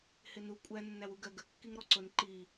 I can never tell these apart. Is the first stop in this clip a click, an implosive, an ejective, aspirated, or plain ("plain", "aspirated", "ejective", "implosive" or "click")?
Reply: ejective